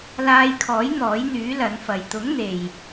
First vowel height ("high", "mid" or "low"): low